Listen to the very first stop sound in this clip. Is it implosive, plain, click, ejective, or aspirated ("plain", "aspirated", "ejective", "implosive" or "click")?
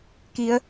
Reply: plain